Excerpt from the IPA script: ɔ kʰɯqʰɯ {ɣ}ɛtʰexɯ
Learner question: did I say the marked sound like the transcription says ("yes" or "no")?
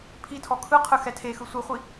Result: no